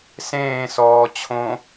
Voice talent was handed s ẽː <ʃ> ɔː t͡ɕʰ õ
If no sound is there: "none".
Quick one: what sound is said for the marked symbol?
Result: s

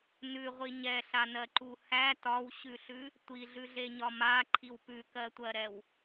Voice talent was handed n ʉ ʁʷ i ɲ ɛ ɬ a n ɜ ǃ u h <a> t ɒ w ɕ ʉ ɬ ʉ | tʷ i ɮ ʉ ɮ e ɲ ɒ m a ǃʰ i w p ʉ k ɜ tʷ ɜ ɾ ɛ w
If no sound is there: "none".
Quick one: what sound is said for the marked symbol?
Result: æ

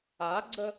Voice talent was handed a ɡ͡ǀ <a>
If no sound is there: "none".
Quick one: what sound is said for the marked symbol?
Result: ə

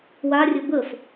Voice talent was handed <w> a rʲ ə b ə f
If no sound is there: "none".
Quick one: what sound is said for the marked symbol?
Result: w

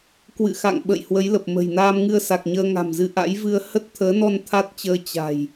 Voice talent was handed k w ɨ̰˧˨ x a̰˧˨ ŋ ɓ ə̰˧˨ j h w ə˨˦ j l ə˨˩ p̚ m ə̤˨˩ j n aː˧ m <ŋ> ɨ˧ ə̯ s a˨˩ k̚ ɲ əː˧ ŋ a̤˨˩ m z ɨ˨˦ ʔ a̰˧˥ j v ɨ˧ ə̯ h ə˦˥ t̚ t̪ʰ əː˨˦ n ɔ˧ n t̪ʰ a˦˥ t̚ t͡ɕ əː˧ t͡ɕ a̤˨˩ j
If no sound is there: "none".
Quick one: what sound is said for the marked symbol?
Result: ŋ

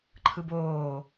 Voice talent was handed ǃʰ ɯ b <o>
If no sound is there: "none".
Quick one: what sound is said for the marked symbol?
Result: oː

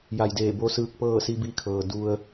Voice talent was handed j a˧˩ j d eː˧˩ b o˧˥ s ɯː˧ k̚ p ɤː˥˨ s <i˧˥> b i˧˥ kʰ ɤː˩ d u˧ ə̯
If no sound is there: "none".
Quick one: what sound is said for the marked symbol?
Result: i˧˥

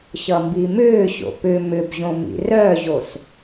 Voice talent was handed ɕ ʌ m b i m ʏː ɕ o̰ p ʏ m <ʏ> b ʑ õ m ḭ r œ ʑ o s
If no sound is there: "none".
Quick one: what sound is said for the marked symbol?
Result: ʏ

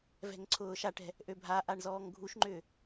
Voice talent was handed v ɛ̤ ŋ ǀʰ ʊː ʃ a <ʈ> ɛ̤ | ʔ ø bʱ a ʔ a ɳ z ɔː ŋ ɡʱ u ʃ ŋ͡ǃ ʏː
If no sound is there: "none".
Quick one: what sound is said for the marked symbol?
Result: ʈ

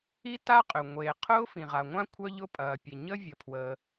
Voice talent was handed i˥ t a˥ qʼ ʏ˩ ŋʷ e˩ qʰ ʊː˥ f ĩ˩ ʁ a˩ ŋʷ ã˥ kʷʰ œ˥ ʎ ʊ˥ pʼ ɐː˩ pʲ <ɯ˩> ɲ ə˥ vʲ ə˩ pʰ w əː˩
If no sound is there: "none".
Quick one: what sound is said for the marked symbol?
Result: ə˩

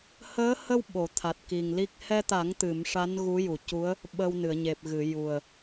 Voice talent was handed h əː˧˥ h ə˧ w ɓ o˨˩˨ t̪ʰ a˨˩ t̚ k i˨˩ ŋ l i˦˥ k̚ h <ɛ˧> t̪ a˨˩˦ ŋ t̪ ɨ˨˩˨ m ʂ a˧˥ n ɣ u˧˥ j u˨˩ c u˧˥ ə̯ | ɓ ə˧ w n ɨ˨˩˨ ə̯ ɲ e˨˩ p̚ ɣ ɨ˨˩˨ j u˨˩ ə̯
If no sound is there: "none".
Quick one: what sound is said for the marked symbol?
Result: ɛ˧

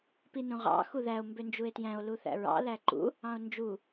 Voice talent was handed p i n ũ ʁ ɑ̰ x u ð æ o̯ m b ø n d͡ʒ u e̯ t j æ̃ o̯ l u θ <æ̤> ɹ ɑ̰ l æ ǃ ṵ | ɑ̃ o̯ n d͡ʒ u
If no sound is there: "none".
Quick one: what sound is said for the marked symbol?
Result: æ̰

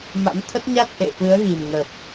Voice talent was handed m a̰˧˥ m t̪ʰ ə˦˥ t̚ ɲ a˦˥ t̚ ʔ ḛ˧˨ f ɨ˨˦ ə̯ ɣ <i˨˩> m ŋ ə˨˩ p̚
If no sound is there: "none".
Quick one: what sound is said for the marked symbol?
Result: i˨˩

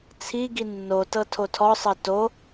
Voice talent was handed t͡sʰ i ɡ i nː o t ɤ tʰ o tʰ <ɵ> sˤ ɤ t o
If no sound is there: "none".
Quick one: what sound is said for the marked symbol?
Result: ɔ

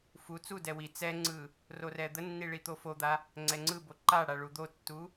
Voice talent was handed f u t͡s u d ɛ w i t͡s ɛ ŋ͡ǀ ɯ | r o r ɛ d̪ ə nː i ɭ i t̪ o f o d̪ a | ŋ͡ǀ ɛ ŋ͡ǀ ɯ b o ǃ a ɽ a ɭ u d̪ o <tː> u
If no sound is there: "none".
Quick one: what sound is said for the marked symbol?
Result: tː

